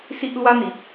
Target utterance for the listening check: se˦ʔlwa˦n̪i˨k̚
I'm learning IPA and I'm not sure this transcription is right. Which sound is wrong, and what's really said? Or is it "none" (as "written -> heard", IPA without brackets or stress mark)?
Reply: e˦ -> i˦